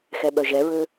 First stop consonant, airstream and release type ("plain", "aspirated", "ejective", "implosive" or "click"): implosive